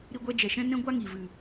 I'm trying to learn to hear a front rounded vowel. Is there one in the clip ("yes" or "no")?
no